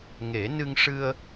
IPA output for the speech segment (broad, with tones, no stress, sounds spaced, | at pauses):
ŋ e˨˩˦ n ɨ˧ ŋ ʂ ɨ˧ ə̯